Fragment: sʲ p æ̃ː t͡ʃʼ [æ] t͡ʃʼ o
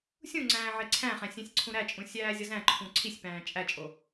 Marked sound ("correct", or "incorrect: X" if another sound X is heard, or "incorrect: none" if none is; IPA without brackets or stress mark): correct